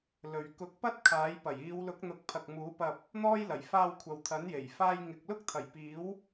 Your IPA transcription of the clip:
l ɵ˨ ɥ k ʊ˨˥ k̚ p ɐ˥ t̚ kʰ aː˨˥ j p ɐ˨˩ j iː˨˧ w l ʊ˨˥ k̚ n̪ ʊ˨˥ k̚ pʰ ɐ˨ k̚ m uː˨˥ p ɐ˧ p̚ | n̪ ɔː˥ j l ɐ˨˩ j f aː˧ w kʷʰ ɐ˨ w t̪ʰ ɐ˨˥ n j e˨˩ j f aː˧ j ŋ ɪ˨ k̚ l ʊ˥ k̚ t̪ʰ ɐ˨˩ j p iː˨˥ w

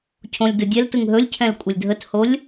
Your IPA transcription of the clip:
cʰ õ lʲ d ɯ dʲ ɛ l t ɯ ŋ ɦ ɵ lʲ cʰ ɛ̃ l kʷʼ ə lʲ dʱ ə t h o lʲ

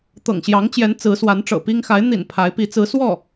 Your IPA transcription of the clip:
t̪ ɤ̰˨˩ ŋ ɕ j ɑ˧˥ ŋ t͡ɕ j ɛ˧˥ n t͡s ɹ̩˧˥ s w a˧˥ n ʈ͡ʂ ɤ̰˨˩ p i˥ ŋ x a˧˥ ɪ̯ n̪ ḭ˨˩ n pʰ a˧˥ ɪ̯ p i˧˥ t͡s ɹ̩˧˥ s w ɔ˥˩

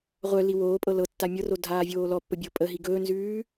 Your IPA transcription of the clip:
ʁʷ œ l i w oː pʼ ɤ l ɤ tː a mʲ ɤ r o dʱ aː vʲ oː l ɔ pː ə bʲ ɤ pʼ ə ɦ i ɡ ɵː n z ʉː

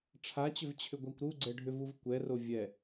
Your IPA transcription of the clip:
ʈ͡ʂʰ a t͡ɕ ʏ v t͡ɕʰ ʏ ɡʷ a kʷ ɾ u ɡ͡ǀ ɛ ɖʱ ʏ v u v kʷ ɛ r o vʲ ɛ

